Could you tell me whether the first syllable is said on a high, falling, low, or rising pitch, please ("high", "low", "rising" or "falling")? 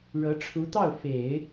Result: rising